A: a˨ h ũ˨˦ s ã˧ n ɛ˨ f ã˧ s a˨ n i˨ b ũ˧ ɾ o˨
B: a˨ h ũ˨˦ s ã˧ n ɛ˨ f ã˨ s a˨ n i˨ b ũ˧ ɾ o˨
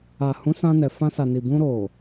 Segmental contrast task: A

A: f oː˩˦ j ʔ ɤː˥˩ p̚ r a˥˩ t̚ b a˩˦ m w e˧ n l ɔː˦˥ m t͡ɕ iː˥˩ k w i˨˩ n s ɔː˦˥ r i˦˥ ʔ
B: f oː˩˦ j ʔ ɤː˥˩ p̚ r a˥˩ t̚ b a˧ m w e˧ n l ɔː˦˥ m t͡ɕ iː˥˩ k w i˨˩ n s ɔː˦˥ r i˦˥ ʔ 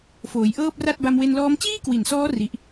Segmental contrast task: B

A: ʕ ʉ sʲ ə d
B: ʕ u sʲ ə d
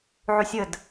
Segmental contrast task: A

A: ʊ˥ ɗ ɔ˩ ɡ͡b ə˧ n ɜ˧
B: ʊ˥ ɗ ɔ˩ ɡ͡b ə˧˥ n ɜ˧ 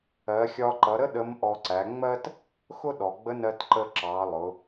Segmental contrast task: B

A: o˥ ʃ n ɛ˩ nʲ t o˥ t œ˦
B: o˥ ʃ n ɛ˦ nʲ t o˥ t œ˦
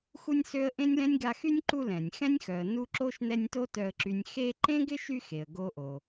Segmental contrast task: B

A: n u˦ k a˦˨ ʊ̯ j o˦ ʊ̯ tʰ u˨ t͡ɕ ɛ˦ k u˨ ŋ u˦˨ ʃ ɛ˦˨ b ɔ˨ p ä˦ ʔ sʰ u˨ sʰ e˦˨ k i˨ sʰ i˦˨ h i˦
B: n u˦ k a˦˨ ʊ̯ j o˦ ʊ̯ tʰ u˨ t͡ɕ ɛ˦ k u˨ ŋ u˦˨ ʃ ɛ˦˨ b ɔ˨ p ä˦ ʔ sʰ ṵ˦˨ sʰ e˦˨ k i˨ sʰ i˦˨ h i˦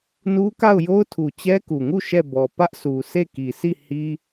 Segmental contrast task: A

